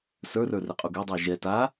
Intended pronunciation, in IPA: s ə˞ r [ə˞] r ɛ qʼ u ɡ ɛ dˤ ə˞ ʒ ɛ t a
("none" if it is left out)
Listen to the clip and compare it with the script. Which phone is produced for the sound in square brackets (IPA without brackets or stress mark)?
ə˞